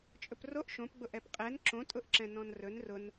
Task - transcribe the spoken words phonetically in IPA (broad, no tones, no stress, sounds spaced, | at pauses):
t͡ʃʼ ɵ p r o ʔ ʃ õ p ɡ͡b ʊ ʔ ɛ p qʼ ɛ n ǁ õ tʼ ʊ ʔ ǁ ɛ̃ n ɔ̃ n r ɵ n r ʊ n